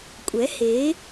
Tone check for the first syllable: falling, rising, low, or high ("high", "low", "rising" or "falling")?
rising